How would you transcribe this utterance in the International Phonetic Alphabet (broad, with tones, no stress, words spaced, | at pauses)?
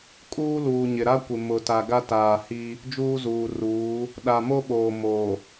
kʼuː˦luː˨ɲɪ˨ ɾa˦kʷɪ˨ mʊ˨ta˨ ɡa˦taː˨hi˦ | d͡ʒuː˦zuː˨ruː˨˦ | ɗa˨mo˦ɓoː˨ mo˨